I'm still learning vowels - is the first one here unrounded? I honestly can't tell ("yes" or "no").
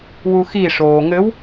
no